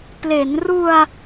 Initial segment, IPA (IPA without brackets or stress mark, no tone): p